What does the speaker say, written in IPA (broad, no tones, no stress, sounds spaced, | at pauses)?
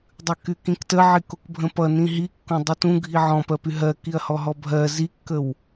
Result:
dˤ ʉ k y k ĩ k t ə ʕ i k o k bʱ ə̃ p ʌ n ĩ ɦ i kː õ dˤ o t ũ ɡʱ i ʕ ɔ̃ p ɜ p y ɦ ɜ k i ɐ̯ h ɔ ɦ ɔ bʱ ɜ z i kː ə w